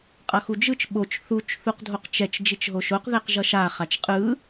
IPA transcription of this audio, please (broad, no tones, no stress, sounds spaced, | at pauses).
qʼ ʌ x u d͡ʒ ɯ t͡ʃ ɓ o t͡ʃ θ u t͡ʃ θ u q dʱ o q t͡ʃ ɛ t͡ʃ d͡ʒ i t͡ʃ ɦ o ʃ o q ð ɛ q ʒ ʌ ʃ a χ a t͡ʃ qʼ ɯ